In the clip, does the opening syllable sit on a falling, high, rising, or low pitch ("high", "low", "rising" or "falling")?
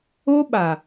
high